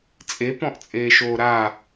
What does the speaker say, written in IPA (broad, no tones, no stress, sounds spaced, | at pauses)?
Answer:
t͡sʼ e p ɔ̃ ʔ t͡sʼ eː ʃ oː ɾ a